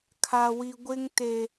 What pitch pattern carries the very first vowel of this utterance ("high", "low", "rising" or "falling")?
low